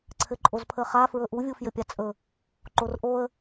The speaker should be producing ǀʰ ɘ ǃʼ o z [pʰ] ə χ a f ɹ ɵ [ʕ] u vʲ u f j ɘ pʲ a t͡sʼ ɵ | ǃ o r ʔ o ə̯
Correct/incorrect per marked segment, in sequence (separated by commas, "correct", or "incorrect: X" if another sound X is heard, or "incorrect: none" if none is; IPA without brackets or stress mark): correct, incorrect: ʔ